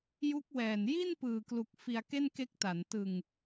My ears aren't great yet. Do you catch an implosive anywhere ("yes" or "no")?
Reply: no